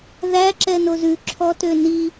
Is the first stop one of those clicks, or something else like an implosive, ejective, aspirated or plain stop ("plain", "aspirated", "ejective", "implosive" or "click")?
click